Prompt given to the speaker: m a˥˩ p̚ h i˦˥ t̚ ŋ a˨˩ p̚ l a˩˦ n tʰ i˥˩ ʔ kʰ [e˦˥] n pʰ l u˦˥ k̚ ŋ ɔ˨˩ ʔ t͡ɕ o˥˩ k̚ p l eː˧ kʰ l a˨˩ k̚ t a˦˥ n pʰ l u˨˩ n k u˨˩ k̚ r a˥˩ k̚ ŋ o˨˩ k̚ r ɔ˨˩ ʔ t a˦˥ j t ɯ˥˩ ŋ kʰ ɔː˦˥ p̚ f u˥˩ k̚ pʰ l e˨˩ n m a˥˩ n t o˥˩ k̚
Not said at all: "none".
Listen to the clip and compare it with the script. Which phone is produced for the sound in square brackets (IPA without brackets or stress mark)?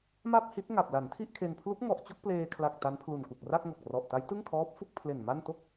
e˧